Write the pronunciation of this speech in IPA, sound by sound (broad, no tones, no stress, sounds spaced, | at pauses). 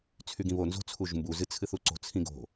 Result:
t͡sʰ y ɡ ĩ β o n z o̤ t͡sʰ u ʒ m b u z ɨ t͡sʰ ɨ θ u ǀ o̤ t͡sʰ ĩ ɡ o̤